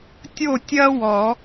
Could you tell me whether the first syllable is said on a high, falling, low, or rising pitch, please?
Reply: falling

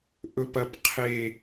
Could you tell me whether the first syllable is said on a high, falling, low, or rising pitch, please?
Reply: high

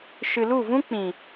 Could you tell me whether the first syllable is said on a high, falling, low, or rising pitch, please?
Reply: low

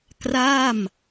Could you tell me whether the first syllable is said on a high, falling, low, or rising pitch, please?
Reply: falling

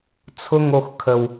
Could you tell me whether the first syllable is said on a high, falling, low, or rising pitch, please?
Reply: high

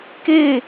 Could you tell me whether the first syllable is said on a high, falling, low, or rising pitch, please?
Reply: falling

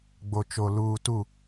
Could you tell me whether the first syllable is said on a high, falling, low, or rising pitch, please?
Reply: low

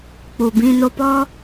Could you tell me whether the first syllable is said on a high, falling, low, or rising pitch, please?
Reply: low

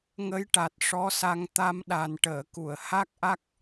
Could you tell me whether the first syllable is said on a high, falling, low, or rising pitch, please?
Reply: rising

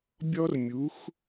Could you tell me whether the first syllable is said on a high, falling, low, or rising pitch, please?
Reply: high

